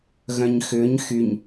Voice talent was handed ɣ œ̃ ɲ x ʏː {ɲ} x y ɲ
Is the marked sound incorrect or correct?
correct